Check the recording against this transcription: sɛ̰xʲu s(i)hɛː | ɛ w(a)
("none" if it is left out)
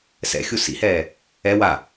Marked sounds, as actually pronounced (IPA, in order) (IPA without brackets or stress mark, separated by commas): ḭ, a